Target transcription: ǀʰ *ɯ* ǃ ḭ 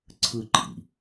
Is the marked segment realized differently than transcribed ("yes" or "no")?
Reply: no